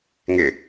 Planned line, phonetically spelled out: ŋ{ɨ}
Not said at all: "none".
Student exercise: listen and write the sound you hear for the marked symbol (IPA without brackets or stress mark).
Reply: ɪ